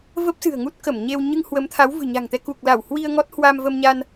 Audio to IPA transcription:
v ə˦˥ p̚ s ɨ̤˨˩ ə̯ ŋ u˦˥ t̚ k ə˧˩ m ɲ e˧ w ɲ ɨ˧ ŋ h w ə˨˦ m t̪ʰ a˨˦ w v ɨ̤˨˩ ɲ a̤˨˩ ŋ t̪ ɛ˧ k u˨˩ k̚ l a˧˩ w h w i˧ ə̯ ŋ ɔ˦˥ t̚ h w a˧ m v ə˧ m ɲ a˧ n

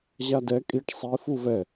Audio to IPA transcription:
ʑ a d ɛ kʼ i ʈ sˤ i f u v ɛ

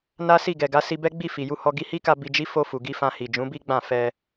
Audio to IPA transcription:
n a˦ s i˦˨ ɡ ɛ˨ ɡ a˨˦ s i˧ b ɛ˦ ɡ͡b i˦˨ f i˨ j u˧ h ɔ˧ ɡ i˦ h i˦ k a˧ b i˧ d͡ʒ i˦ f o˧ f u˨ ɡ i˧ f ã˧ h i˨ d͡ʒ ũ˨˦ b i˦ ɡ͡b ã˦˨ f ɛ˧

